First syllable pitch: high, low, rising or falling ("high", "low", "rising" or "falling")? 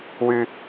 high